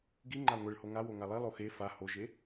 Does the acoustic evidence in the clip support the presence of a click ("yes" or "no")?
yes